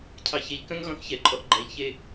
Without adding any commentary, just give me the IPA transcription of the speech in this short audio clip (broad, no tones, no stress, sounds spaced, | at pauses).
cʰ ɑ ç e ʎ k œ̃ ŋ ɣ ɔ̃ θ ç ɛ ǃʼ ɔ ʔ ɡ͡ǃ æ ʎ ç e